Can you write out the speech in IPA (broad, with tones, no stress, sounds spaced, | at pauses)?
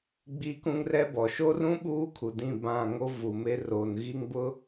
ɡ͡b i˦ k ũ˦ ŋ r ɛ˦ b ɔ˨ ʃ o˦ r ũ˦ ɓ uː˦ kʰ u˨ d ĩ˦˨ b ã˦˨ ŋ o˦ v u˨ m e˦ r o˨ n ɣ i˦ ŋ b ʊ˦